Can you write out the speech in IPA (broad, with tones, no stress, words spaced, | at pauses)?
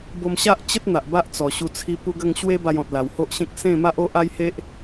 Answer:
bo˧mɕa˦ʔt͡ɕə˦t̚ n̪a˨ʔba˦ʔt͡sɔ˨˩ ɕu˧t͡sʰi˧ pu˧ɡə˧ŋ ɕwe˦ba˧jɔ̃˨t̚ la˨˩who˦ʔɕẽ˦k̚ sẽ˥˧ma˦ʔ o˦ʔa˦jhe˦ʔ